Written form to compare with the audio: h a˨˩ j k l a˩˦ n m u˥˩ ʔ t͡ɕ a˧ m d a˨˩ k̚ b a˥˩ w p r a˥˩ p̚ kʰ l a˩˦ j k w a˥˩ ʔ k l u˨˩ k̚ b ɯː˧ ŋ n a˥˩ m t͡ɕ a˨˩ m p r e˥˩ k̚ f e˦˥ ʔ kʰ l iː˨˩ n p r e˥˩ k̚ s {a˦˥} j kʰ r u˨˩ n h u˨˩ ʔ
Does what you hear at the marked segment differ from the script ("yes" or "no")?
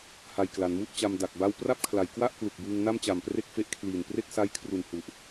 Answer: no